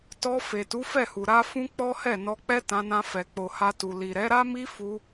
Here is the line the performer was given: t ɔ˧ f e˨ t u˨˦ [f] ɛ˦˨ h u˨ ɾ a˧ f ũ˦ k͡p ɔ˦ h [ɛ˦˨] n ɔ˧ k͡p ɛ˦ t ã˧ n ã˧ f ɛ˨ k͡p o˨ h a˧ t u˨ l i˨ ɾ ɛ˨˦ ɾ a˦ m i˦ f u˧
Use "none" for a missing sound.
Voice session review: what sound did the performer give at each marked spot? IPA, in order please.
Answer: f, ɛ˦˨

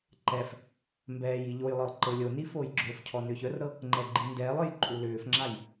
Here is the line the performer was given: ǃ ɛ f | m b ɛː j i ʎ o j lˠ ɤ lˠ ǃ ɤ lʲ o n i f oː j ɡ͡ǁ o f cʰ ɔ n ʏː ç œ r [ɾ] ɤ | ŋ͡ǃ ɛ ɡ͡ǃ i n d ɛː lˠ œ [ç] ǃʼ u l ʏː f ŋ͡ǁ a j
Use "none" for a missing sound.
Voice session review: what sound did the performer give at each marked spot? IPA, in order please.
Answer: ɾ, j

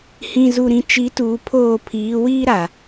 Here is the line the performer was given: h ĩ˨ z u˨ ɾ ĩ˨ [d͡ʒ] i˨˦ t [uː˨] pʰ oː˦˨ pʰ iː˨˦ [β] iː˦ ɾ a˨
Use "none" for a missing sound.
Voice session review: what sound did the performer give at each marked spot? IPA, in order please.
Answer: t͡ʃ, uː˨, w

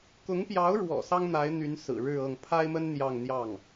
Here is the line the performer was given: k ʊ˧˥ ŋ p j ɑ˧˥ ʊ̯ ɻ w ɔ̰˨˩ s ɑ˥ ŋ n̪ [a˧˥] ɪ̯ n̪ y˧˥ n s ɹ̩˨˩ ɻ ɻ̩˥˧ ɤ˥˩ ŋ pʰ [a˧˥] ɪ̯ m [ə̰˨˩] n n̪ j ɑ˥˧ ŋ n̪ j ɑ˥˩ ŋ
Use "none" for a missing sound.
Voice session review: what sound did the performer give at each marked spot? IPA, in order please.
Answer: a˧˥, a˥, ə˥

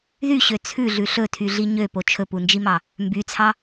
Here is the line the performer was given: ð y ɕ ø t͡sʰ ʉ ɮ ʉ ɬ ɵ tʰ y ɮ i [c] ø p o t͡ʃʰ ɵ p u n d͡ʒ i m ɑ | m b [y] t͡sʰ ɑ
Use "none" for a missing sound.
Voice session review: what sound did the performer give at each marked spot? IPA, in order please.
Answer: ɲ, y

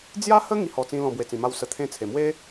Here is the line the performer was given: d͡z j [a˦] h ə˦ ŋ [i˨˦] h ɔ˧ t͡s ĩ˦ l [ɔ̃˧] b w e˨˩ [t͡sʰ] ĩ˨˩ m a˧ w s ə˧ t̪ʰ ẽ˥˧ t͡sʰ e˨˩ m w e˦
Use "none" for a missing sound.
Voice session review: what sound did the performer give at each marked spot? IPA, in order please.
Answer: a˦, i˦, ɔ̃˧, t͡s

